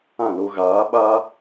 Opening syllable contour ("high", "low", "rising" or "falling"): falling